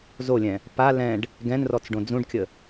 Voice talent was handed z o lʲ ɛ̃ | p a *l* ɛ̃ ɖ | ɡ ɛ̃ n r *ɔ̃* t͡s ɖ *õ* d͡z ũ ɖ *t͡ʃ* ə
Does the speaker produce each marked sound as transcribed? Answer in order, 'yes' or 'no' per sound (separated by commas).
yes, no, yes, no